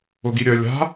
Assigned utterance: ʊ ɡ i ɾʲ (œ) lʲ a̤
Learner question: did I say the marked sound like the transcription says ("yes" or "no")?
yes